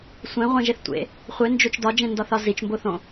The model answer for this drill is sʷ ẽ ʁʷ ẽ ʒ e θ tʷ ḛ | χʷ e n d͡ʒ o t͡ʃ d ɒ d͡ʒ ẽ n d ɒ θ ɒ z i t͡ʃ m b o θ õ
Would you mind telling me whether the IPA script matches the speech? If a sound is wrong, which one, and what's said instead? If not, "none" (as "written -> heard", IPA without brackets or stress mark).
none